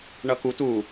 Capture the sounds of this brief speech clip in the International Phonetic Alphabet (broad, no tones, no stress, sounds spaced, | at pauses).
ɳ ʌ k u t u